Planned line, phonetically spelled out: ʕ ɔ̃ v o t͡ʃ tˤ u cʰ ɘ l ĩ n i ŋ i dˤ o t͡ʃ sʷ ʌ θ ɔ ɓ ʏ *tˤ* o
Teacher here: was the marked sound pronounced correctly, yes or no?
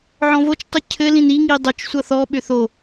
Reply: no